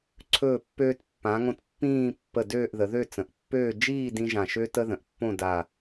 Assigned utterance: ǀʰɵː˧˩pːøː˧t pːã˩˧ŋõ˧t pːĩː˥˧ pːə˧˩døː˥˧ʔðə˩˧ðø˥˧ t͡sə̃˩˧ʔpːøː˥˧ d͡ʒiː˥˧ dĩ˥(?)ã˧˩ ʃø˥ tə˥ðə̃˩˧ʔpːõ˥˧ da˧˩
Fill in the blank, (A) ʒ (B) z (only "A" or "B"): A